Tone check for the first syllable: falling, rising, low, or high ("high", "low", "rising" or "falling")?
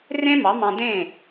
high